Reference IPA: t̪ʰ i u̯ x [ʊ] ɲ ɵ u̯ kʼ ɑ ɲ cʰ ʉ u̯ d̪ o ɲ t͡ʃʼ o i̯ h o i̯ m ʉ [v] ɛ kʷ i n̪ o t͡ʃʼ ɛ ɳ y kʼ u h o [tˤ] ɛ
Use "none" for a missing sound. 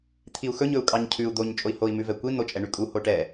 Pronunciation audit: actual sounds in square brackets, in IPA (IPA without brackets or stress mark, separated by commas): ɵ, v, ʈ